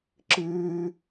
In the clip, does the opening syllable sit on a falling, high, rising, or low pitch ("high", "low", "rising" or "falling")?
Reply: high